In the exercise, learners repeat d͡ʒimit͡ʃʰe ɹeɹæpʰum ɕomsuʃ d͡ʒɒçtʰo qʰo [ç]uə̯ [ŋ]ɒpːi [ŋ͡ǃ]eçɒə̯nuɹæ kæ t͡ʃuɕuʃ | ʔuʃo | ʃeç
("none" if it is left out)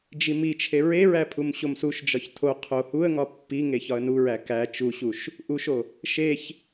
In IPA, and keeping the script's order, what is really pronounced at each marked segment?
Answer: h, ŋ, ŋ

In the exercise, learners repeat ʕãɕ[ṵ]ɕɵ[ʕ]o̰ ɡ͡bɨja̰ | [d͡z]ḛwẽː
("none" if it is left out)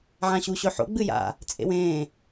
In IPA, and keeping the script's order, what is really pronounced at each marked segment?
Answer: u, ħ, t͡sʼ

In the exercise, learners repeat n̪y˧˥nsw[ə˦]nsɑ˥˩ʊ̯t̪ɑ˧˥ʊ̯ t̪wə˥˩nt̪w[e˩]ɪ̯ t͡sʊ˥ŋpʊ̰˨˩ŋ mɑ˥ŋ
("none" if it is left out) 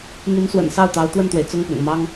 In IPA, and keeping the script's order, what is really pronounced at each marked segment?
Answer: ə̰˨˩, e˩

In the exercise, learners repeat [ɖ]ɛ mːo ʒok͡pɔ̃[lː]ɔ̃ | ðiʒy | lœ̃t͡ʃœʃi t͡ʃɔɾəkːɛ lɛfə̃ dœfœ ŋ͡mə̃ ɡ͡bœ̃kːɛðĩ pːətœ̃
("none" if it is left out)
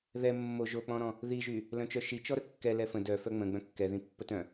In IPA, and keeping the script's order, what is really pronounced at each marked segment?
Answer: ð, ɾ

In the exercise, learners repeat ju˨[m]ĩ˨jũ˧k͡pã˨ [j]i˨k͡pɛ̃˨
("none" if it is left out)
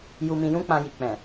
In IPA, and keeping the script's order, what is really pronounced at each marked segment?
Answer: m, j

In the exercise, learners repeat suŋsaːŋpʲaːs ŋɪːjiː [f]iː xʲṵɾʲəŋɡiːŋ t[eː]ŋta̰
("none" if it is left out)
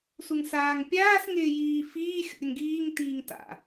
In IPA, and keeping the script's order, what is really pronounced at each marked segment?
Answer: f, iː

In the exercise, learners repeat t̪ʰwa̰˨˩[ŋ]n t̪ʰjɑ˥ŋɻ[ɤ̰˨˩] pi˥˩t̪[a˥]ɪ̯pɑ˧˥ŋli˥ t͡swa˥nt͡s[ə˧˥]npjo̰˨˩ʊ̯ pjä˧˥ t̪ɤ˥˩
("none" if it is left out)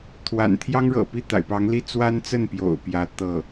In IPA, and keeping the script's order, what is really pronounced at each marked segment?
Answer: none, ɤ̰˨˩, a̰˨˩, ə˥˩

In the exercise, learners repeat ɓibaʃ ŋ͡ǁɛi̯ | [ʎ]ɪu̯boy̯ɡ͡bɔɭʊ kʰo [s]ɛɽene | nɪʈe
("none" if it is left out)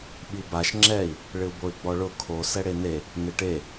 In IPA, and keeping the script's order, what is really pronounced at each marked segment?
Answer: ɭ, s

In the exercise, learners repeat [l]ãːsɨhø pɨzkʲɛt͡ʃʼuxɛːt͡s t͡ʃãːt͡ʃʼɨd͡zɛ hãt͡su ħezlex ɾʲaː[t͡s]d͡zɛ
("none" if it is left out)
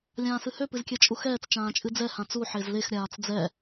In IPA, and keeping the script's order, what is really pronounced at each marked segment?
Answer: lʲ, t͡s

